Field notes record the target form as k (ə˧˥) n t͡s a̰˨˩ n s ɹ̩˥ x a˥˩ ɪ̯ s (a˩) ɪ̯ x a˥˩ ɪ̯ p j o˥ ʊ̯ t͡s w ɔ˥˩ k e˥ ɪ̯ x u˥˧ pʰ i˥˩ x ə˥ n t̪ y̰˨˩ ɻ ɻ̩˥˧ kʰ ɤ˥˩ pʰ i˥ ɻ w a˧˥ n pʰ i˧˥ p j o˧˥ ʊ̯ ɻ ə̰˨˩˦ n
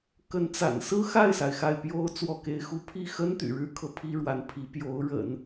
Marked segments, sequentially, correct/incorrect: correct, correct

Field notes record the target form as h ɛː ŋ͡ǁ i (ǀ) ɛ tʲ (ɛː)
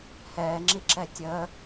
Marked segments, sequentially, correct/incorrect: incorrect: ǁ, incorrect: əː

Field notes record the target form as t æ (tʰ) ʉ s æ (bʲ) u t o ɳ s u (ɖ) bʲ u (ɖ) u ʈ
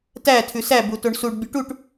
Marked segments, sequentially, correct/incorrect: correct, incorrect: b, correct, incorrect: ʈ

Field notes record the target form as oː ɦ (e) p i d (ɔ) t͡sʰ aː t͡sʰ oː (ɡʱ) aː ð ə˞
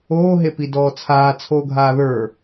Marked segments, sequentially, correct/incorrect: correct, incorrect: ɔː, correct

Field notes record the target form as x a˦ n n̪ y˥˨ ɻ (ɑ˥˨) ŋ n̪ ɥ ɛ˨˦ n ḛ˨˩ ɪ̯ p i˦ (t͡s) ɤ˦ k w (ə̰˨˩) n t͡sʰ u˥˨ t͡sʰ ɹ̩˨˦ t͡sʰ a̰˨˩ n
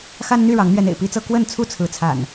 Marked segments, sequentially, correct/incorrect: incorrect: ɑ˨˦, correct, incorrect: ə˥˨

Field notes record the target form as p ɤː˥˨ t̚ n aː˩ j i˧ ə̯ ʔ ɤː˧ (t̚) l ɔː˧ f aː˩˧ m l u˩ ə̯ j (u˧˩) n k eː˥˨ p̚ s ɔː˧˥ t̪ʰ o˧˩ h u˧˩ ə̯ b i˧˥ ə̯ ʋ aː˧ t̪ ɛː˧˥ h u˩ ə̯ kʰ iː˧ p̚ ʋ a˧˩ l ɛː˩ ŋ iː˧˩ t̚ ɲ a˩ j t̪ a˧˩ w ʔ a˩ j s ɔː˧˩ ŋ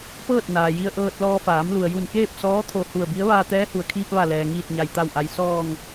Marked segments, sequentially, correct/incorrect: correct, correct

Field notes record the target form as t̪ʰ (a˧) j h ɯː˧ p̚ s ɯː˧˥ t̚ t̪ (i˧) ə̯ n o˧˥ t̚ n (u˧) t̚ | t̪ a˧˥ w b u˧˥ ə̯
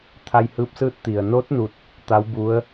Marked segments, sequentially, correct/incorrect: correct, incorrect: i˩, incorrect: u˥˨

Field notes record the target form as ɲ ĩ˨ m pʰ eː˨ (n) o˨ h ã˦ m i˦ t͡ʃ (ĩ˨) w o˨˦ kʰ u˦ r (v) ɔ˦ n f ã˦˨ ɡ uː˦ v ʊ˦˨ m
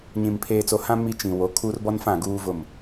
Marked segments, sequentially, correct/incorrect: incorrect: t͡s, correct, incorrect: b

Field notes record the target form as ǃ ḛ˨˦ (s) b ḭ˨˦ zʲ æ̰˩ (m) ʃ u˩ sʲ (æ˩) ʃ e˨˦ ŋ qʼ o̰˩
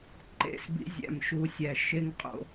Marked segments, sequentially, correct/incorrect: correct, correct, correct

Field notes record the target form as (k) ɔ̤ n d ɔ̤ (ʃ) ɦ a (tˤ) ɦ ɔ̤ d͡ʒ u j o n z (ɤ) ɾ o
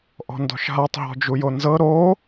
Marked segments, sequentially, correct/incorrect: incorrect: ʔ, correct, correct, correct

